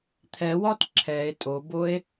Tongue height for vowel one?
mid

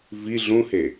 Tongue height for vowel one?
high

